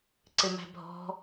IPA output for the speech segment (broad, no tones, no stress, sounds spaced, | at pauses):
ǀ ɪ m æ̤ bʱ ɔ̤